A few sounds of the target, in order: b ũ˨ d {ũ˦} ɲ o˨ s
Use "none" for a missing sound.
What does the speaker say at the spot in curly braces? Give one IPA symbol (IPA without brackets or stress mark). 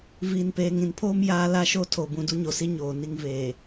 u˦